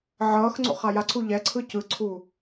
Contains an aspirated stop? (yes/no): yes